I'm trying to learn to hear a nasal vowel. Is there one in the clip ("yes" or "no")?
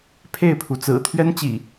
no